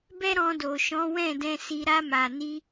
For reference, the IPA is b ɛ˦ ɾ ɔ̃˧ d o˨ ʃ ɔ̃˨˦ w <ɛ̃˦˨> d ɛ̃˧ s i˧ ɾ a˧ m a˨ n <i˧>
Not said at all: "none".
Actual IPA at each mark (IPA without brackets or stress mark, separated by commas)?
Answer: ɛ̃˦˨, i˧